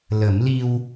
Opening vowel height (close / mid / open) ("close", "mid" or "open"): mid